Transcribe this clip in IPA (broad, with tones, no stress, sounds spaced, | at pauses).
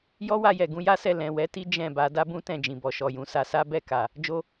j ɔ˦ w a˧ j ɛ˨ ɡ ũ˧ j a˦ s ɛ˦˨ l ɛ̃˨ w ɛ˨˦ t i˦ d͡ʒ ɛ̃˦˨ b a˨˦ d a˦ b ũ˦ t ɛ̃˦˨ d͡ʒ ĩ˨ b ɔ˨ ʃ ɔ˨ j ũ˨˦ s a˦ s a˦ b ɛ˦˨ k a˨ | d͡ʒ o˦